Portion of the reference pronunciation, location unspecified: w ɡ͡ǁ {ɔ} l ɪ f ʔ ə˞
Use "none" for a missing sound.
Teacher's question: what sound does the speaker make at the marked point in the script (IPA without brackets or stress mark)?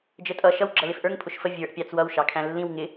ʌ